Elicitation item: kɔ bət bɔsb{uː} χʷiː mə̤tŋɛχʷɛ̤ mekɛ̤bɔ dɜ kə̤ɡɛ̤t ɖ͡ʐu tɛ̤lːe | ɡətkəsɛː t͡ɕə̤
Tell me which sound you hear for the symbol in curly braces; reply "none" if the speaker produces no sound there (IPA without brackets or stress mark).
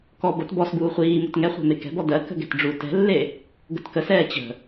uː